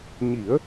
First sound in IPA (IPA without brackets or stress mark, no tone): ɲ